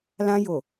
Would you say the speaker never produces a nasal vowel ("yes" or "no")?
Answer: no